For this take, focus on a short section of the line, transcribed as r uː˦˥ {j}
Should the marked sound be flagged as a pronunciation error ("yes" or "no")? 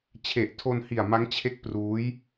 no